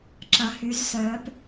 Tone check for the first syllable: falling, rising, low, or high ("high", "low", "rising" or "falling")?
rising